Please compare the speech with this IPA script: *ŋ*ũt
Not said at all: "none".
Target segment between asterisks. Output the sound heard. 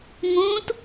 ŋ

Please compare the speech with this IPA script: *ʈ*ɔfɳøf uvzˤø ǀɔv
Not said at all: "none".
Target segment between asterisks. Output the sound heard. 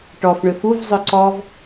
ʈ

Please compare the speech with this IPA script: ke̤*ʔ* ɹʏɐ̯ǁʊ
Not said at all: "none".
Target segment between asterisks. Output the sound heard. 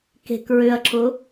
k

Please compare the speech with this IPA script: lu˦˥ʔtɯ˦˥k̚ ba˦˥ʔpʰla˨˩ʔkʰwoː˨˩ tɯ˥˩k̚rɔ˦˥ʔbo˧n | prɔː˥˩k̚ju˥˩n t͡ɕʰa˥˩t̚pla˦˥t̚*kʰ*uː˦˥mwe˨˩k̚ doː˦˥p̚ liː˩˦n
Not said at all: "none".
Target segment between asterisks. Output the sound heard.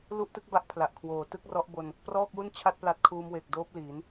kʰ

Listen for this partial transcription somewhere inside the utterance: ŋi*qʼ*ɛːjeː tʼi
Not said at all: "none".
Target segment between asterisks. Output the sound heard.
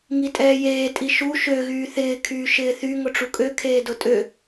tʼ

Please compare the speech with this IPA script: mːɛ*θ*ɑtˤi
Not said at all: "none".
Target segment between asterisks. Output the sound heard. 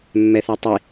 θ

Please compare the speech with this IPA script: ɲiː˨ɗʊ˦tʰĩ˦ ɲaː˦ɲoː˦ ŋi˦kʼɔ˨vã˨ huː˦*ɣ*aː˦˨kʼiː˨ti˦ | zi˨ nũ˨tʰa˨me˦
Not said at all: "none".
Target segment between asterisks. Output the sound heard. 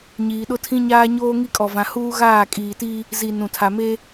ɣ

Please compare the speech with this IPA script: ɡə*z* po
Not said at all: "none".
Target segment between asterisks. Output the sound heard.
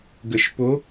ʃ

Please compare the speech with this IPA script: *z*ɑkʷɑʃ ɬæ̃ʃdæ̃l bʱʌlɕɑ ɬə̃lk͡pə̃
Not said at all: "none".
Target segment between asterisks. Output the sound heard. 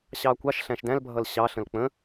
ɕ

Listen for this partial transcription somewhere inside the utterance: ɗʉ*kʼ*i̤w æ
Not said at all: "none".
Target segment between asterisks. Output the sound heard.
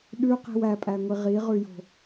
q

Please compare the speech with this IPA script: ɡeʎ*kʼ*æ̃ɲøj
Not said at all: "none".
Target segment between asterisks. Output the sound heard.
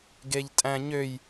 tʼ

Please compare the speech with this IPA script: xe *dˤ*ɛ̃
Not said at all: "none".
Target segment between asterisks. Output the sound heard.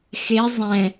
zˤ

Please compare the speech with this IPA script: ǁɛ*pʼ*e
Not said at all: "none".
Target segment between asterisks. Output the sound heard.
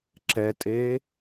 tʼ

